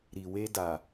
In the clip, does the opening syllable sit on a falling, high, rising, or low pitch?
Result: low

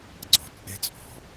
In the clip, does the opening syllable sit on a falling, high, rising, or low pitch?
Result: low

